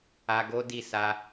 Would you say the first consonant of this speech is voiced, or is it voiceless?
voiced